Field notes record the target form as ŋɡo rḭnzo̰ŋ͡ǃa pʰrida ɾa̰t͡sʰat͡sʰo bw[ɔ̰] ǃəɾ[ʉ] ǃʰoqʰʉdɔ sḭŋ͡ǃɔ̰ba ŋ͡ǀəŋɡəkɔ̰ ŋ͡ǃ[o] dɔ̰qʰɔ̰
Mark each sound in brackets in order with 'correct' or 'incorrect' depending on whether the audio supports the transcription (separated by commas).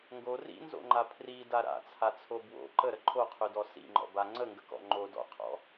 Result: incorrect, incorrect, correct